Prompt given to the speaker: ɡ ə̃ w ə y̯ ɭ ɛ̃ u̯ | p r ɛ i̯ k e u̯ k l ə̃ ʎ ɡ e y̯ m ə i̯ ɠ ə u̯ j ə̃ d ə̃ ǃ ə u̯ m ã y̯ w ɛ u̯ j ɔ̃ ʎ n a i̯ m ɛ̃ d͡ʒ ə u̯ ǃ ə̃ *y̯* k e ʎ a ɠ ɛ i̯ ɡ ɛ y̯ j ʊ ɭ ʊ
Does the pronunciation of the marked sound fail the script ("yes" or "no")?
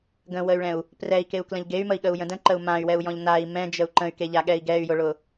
no